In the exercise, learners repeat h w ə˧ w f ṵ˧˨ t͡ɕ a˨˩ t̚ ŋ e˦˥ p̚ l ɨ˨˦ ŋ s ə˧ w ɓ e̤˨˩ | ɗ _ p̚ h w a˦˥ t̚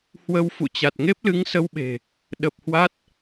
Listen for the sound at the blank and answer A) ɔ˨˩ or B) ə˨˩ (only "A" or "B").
B